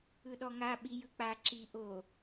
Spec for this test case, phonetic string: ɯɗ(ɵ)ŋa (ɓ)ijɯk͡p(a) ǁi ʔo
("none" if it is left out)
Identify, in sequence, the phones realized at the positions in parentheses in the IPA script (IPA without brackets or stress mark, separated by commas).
ɔ, ɓ, a